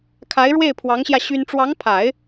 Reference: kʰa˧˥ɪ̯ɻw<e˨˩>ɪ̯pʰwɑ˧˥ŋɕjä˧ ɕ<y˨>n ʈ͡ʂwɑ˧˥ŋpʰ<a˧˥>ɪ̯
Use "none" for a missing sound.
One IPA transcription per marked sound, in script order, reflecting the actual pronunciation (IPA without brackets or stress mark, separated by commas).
e˥˩, y˥, a˨˩˦